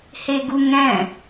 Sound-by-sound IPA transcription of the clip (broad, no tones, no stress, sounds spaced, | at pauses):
h e ɡ u ŋ ɛ̃